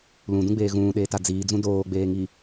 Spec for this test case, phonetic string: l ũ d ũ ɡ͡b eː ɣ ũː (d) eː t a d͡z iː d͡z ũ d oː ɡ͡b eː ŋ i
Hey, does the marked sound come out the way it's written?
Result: no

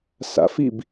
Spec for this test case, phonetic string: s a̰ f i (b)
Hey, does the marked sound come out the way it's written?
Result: yes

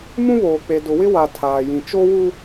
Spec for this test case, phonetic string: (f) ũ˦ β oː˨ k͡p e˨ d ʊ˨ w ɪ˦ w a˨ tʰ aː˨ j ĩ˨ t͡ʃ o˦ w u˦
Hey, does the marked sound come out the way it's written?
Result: no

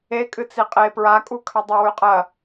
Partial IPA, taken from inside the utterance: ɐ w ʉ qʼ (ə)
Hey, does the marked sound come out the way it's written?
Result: no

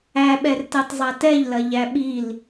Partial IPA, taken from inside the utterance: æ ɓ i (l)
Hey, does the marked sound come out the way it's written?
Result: yes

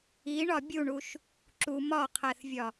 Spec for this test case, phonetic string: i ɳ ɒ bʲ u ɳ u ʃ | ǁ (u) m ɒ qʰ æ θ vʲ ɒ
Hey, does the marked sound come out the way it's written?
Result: yes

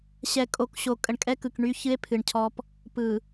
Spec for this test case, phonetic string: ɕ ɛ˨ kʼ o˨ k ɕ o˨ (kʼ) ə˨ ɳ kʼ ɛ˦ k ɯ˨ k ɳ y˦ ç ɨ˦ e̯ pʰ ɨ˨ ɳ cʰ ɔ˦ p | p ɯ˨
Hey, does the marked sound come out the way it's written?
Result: yes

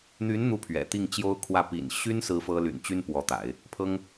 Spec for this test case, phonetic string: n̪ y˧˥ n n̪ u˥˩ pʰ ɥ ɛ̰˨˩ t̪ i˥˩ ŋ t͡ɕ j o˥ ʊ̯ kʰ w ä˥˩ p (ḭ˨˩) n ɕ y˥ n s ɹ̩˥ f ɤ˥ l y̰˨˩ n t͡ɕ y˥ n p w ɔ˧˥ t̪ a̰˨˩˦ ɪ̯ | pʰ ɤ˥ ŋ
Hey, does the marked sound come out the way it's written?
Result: yes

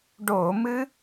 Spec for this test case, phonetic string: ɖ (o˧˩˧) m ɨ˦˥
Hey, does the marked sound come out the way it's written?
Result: yes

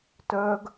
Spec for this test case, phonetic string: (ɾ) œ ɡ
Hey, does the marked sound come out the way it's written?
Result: no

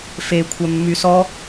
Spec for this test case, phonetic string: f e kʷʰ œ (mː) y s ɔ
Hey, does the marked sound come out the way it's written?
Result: yes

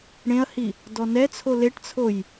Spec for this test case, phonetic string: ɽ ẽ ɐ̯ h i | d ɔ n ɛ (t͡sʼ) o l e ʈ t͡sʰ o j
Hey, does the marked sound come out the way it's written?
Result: no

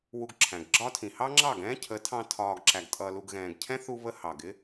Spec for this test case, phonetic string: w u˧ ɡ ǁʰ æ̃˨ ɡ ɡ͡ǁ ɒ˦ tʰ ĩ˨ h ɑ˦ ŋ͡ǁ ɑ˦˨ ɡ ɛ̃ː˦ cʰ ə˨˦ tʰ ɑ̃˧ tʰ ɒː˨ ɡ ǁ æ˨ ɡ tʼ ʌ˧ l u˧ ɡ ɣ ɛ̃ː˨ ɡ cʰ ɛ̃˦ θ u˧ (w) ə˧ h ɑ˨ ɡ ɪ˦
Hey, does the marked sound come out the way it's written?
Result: no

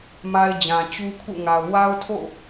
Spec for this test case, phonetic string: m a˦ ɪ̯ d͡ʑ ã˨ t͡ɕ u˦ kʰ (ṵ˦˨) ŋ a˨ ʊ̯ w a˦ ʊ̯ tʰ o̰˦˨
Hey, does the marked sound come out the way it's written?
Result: yes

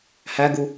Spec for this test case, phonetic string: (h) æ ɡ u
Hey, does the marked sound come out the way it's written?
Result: yes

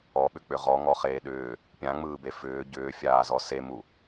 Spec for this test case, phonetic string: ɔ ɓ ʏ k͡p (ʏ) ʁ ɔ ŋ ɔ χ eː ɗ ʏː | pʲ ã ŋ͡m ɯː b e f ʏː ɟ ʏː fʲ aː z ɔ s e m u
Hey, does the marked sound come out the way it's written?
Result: yes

